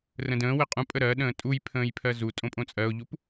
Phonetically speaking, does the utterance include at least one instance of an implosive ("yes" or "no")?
yes